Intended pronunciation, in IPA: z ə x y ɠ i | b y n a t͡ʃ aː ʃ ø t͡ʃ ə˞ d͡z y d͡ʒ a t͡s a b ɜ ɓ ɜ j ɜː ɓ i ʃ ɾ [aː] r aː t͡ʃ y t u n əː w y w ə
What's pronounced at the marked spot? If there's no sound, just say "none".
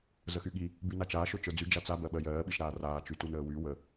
aː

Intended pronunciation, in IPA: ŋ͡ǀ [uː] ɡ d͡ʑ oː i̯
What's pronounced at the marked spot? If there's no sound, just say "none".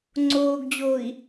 oː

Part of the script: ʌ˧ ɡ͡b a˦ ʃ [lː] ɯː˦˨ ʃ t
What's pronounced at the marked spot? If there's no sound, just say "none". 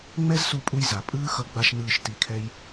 n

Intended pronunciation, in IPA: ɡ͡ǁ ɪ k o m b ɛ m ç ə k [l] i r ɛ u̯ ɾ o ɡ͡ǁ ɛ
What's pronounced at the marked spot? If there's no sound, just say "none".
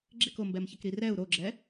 ɾ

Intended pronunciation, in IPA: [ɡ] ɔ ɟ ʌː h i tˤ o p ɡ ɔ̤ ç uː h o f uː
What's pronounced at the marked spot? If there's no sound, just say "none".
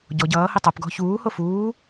ɟ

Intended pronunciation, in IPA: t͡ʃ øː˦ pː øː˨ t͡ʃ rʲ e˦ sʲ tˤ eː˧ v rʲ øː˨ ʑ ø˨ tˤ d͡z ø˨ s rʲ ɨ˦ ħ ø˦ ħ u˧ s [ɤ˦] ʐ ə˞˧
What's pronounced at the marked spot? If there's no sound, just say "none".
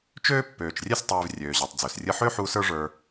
ə˞˦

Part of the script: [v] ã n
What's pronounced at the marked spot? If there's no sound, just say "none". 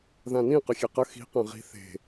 ð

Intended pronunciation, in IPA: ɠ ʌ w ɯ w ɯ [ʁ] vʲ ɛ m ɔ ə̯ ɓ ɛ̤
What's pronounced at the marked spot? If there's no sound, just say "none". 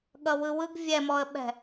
ɡ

